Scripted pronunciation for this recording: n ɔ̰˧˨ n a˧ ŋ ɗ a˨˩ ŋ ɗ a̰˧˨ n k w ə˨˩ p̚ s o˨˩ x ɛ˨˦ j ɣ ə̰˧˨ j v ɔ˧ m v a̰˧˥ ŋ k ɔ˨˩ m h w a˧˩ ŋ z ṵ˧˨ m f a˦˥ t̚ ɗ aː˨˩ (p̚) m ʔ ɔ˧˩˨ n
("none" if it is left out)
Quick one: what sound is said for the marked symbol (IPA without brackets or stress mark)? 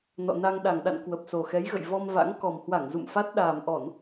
none